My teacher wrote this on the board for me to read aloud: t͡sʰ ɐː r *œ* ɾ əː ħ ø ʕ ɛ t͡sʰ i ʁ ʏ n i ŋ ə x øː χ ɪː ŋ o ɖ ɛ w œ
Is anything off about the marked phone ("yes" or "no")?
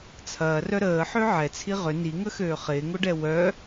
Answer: no